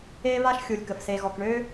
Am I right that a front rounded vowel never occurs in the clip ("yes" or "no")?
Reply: no